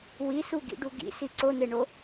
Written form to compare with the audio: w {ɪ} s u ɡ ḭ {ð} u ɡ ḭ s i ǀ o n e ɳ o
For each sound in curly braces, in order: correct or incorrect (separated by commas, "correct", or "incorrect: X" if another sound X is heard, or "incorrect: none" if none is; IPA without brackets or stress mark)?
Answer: incorrect: i, incorrect: ɖ